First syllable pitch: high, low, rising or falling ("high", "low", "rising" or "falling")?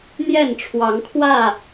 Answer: falling